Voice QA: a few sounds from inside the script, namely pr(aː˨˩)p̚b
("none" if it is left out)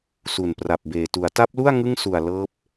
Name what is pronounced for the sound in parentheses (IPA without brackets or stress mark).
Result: a˨˩